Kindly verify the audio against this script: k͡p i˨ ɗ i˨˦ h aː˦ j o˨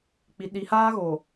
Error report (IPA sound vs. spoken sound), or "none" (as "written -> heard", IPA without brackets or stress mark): j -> ɣ